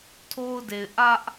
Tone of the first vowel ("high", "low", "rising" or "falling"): high